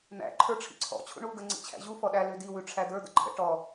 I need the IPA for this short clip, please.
n̪ æ̰ ǃʰ ə˞ ʈ͡ʂʰ ḭ ǀʰ ɔ̰ t͡ɕʰ ṵ ɳ u ɡ ə ŋ͡ǀ ḭ t͡ɕʰ æ̰ ʑ u f ɔ ɗ æ l ʉ d i w ʉ ʈ͡ʂʰ æ d̪ ə˞ d̪ ə̰ ǃʰ ə̰ ʈ ɔ

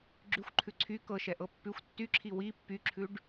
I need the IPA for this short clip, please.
ɡ͡ǁ ʉ xʷ ǃʰ ʉ ǀʰ y k ɤ ʃ ɛ ʔ ɤ pː ʉ xʷ tː y ǁʰ i w i pː y ǁʰ ʉ ɖ

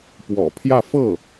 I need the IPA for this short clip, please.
p w ɔ̰˨˩ pʰ j ä˥˧ f ɤ˥˩

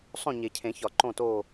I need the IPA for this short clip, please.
sˤ õ˦˨ ɲ e˨˩˦ cʰ ẽ˨˩˦ ç ɒ˨˩˦ ǃ õ˦˨ t oː˦˨

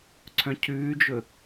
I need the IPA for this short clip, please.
ǀʰ œ̃ cʰ ʉː d͡ʒ ɵ

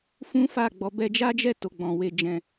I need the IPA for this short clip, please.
f ũ˦ f a˦˨ ɡ͡b ɔ˧ b ɛ˧ d͡ʒ a˦ d͡ʒ ɛ˦˨ t o˨ ɡ͡b ɔ̃˨ w e˧ d͡ʒ ɛ̃˧

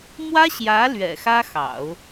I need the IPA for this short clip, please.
m w ä˥ ɕ j ä˧˥ l ɥ ɛ̰˨˩ x ä˥ x ɑ̰˨˩˦ ʊ̯

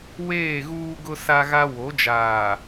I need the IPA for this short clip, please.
w eː˦˨ ɣ uː˦ ɡ ʊ˦ s a˦ ɣ a˦ w o˨˦ d͡ʒ aː˨

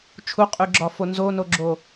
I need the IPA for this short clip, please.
t͡ʃʰ u qʼ ʉ ɡ͡ǁ ɒ f o n z o n o ɡ͡ǁ o

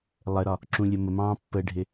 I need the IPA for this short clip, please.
lˠ ə ɾ ɒ | ǁ ũ lʲ ə m ə m ɑ̃ː pː ə ɖʱ ɪ

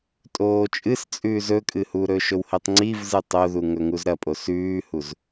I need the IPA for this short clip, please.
tʼ oː t͡ʃʼ ɨ s t͡sʼ ʉː z ɵ kʼ ɨ h u ɾ ɵ ʃ ɵ w h e tˤ ŋ͡ǀ i v z ɨ tˤ o ð u ŋ ɵ ŋ u z ɾ ɐ pʼ o s ʉː h u z

